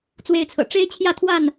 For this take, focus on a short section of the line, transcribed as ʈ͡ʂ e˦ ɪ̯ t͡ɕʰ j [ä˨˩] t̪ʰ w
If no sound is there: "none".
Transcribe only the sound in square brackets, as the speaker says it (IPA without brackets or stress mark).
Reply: ä˥˨